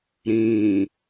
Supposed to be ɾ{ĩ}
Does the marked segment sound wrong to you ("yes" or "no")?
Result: no